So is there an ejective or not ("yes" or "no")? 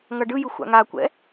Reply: no